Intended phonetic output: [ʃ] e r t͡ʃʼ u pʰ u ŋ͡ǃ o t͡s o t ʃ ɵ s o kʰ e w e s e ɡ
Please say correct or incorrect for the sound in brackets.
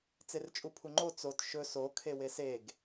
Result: incorrect: t͡s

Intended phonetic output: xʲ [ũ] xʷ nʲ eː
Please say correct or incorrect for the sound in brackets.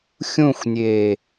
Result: correct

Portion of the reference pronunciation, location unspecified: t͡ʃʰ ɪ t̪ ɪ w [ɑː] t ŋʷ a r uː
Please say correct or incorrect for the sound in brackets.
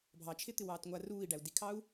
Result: correct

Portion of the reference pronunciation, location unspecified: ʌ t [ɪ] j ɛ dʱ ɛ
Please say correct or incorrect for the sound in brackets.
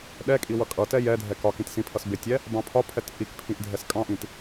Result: incorrect: ɛ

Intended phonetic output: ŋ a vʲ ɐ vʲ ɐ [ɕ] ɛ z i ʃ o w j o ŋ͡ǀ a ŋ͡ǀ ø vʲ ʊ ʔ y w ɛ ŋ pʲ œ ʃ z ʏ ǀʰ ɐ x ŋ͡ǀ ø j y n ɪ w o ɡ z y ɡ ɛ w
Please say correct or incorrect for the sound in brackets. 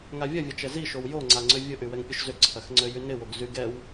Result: incorrect: t͡ʃ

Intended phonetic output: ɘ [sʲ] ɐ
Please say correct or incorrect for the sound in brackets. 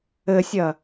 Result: correct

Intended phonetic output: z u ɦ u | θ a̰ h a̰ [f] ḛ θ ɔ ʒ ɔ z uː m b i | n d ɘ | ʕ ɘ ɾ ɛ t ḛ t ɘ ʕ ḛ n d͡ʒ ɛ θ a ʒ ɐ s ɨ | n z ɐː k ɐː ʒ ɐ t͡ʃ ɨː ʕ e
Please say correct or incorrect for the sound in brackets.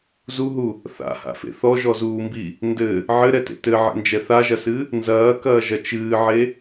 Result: correct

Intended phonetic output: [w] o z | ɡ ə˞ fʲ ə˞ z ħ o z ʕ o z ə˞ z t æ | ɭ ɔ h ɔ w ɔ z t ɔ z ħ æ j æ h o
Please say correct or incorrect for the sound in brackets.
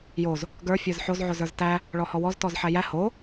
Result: incorrect: j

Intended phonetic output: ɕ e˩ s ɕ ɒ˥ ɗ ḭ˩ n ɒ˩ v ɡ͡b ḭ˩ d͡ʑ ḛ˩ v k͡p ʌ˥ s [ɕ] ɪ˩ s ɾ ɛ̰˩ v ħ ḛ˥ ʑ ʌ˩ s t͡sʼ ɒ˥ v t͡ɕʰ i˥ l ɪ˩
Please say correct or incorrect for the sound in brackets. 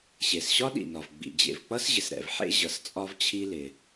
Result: incorrect: ʑ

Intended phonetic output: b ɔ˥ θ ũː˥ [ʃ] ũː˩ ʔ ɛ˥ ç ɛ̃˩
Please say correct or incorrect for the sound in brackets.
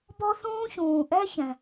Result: incorrect: ç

